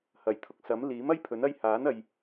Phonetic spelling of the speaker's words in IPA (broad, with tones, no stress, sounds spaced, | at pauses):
h ɐ˨˩ j t̪ʰ ʊ˨ k̚ s ɐ˨˥ m l iː˨˥ m ɐ˥ j pʰ ɵ˨˥ n ɐ˥ j h aː˨˥ n ɐ˨ j